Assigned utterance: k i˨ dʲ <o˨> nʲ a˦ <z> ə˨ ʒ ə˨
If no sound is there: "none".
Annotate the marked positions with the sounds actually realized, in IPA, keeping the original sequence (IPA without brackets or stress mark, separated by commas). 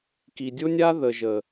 o˦, ð